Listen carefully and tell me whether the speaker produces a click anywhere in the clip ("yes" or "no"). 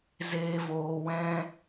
no